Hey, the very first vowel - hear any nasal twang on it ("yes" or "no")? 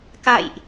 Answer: no